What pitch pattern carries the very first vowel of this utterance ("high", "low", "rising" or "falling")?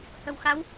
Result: low